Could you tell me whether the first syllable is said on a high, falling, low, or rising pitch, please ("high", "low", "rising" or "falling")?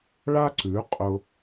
high